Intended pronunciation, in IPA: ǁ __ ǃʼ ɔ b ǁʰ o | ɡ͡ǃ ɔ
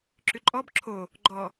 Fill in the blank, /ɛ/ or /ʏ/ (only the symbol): ʏ